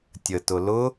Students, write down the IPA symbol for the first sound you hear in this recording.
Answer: tʲ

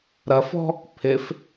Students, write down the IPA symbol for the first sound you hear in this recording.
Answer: ɾ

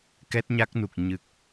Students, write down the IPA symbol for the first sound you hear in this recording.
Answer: k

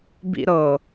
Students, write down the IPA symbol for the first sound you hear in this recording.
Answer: b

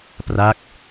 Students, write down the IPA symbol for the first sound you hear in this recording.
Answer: p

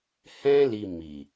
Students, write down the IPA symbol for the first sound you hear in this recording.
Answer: h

